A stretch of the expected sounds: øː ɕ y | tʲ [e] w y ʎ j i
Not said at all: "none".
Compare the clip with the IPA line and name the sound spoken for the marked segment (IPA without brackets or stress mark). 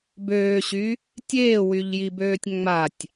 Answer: eː